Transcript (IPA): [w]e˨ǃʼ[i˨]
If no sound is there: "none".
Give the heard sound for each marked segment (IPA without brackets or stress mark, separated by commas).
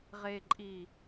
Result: ʁ, i˨